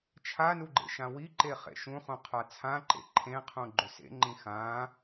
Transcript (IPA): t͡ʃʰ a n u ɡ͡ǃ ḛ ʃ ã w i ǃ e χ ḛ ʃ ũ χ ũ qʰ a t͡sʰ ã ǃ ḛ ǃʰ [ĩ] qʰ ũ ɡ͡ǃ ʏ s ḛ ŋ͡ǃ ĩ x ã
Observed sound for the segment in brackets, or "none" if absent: ẽ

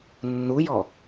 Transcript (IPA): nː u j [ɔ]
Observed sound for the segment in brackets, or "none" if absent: ɔ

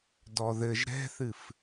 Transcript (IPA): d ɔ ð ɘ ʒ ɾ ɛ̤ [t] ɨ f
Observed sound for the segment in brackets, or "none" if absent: θ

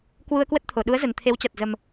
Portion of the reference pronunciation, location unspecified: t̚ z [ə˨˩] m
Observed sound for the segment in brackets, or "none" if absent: ə˨˩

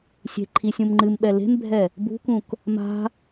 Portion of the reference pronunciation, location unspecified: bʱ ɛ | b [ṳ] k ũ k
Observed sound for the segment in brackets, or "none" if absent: ṳ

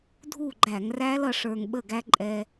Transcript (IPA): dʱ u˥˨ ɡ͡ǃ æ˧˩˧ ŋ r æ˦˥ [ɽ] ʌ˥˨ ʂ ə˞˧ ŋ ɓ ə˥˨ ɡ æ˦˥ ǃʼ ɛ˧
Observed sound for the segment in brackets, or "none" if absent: l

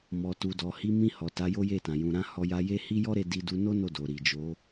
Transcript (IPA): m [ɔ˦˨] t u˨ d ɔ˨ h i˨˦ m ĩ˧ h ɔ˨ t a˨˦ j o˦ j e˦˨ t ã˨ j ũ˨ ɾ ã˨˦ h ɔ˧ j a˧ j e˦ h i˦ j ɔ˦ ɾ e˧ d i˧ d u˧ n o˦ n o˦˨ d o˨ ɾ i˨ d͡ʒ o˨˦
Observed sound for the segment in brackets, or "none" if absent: ɔ˨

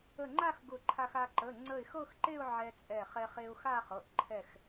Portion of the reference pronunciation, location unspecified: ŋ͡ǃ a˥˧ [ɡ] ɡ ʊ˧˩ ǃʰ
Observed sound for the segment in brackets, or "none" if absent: x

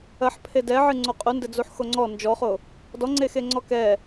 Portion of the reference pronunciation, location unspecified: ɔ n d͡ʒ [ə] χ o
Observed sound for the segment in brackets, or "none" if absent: ɔ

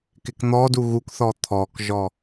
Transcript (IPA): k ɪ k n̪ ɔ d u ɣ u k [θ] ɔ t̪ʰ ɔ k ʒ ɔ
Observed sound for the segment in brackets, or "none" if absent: θ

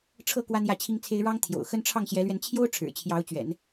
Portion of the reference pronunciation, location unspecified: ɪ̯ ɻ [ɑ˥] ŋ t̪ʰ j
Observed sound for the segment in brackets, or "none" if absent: ɑ˥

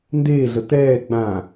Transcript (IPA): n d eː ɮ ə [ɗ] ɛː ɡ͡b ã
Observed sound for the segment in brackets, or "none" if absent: t̪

